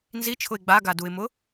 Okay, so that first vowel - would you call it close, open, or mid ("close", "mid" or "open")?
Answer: close